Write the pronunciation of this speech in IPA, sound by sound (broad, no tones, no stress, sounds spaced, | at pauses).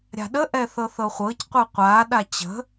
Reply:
ɾʲ a̤ ɗ ə ʔ ɛ θ ɤ θ ɤ χʷ ɤ c qʷ ɨ qʷ a ɗ a t͡ɕ ə̤